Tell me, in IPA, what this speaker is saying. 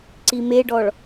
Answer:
ǀimeɖɔɭ

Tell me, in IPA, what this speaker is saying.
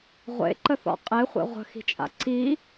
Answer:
ʁʷḛǃəθɔ̰ qʼeχʷḛ ʁʷə̤xi̤t͡ʃʼa̰ ǀi

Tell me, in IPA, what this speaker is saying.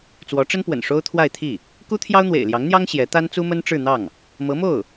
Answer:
t͡swɔ˧˥ʈ͡ʂə˥npwə̰˨˩n ʂo˥ʊ̯t̪ʰwa˥˧ɪ̯t̪ʰi˥˩ | ku˥t̪ʰjɑ˥ʊ̯ n̪wḛ˨˩ɪ̯ljɑ˧˥ŋn̪jɑ˥ŋ ɕjɛ˧˥t̪a˥nt͡su˥mə˥n ʈ͡ʂɻ̩˥˧n̪ɑ˥˩ŋ | mɤ˧˥mo˥˩ʊ̯

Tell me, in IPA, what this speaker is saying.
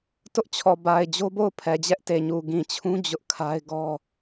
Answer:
tʊ˦ʔt͡ɕʰɔ˨ ba˨ɪ̯ d͡ʑo˦bo˦˨ʊ̯ pʰɛ˨d͡ʑɛ˦ʔte˨ɲu˨ ɡĩ˨t͡ɕʰũ˦ d͡ʑʊ˦ʔkʰa˦ɪ̯ ɡɔ˦

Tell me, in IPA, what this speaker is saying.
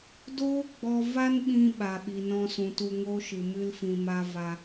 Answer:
doː˦ɡ͡bɔ˧ va˦nɓĩ˧ ɓa˨ɓi˨nɔ̃˧sũ˨ tu˧ŋo˦ʃɨ˨ mɨ˦lfĩ˧ma˦ va˧

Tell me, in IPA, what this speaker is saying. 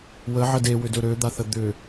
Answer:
wəʕə dewʏdɵ ɾød̪aθə d̪ʏ

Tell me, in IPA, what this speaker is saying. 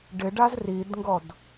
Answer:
ɖɪɖaz ridŋɡɔd

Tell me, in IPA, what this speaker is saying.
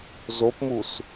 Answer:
zopmus

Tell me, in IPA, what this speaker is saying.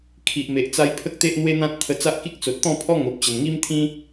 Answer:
kʰi˨ʔme˨ʔt͡sa˧j pʰə˦k̚t̪e˦ʔn̪we˦n̪ã˦t̚ t̪ʰə˧t͡sa˦ʔki˦k̚ t͡so˨t̚t̪ɔ̃˥˧pʰɔ˦ ŋo˨p̚t͡ɕə˨˩nŋi˦mt̪ʰĩ˦

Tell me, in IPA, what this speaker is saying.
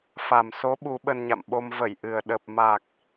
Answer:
fa˨˩mso˨˦ ɓu˨˦ɓə˧nɲa̰˧˨mɓo˧m və˧˩jʔɨ˨˩ə̯ ɗə˨˩p̚ ma˨˩k̚

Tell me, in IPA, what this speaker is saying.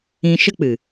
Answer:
ĩ˧ʃə˦k͡pɨ˨

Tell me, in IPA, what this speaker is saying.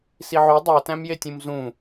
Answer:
siʕo dˤætæ̃mjetʲũm zũ

